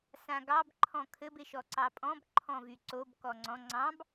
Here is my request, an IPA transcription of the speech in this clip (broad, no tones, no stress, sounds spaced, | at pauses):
s ã ɡ ɑ b ǃʰ ɔ̃ kʰ ɘ b ɪ ʃ ɔ ǀ ɑ pʼ ɔ̃ b ǃʰ ɔ̃ v y ǀ o b k ɔ ŋ͡ǀ ɔ̃ ŋ͡ǀ ɑ̃ b